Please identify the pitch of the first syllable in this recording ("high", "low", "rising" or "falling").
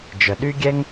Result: low